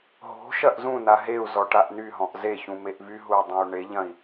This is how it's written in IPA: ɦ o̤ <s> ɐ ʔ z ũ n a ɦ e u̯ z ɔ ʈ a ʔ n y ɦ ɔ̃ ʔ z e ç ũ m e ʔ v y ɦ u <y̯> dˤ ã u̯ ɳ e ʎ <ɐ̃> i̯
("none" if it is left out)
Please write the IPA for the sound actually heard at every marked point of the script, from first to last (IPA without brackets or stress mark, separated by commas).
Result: ʃ, i̯, ɐ̃